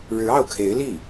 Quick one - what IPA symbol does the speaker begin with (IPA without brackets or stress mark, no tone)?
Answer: ɻ